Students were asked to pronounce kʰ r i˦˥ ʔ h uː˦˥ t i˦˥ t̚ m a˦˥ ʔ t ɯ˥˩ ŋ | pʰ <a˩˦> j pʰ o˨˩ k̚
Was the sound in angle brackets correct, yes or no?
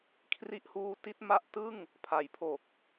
yes